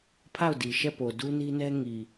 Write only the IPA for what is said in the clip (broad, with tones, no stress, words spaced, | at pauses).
pʰa˦˨ʊ̯di˨ʃɛ˦˨po˨ du˦ni˦nɛ˦ ŋi˨